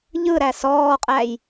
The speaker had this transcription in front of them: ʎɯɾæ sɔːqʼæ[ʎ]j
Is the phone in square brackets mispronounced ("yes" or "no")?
yes